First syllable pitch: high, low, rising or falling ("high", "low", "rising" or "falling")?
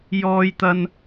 high